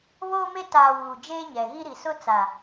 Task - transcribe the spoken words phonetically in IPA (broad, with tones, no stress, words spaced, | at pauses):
βoː˦me˦ taː˨ wuː˨d͡ʒeː˦ɲɛ˨ɣi˦ ɾi˨sʊ˦ t͡sa˨